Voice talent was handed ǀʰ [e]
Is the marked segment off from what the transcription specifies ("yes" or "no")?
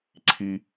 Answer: yes